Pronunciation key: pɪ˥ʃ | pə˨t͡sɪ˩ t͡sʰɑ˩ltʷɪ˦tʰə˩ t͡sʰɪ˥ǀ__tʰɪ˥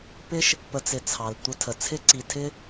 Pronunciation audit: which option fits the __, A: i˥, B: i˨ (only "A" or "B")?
B